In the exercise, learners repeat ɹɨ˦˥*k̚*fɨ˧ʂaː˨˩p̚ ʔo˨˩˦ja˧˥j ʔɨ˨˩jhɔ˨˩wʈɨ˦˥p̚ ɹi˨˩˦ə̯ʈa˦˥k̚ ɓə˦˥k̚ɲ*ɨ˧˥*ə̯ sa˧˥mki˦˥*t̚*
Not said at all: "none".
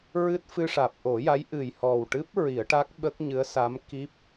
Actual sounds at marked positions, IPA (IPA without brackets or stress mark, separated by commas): t̚, ɨ˧˥, p̚